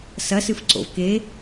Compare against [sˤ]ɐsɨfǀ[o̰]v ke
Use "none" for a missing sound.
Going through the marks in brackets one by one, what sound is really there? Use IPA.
s, o̰

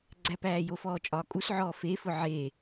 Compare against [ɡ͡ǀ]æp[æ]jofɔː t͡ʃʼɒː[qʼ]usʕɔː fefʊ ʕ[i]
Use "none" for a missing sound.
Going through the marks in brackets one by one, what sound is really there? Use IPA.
ɡ͡ǀ, æː, kʼ, e

